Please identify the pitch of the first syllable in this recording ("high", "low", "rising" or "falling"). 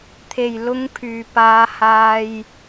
low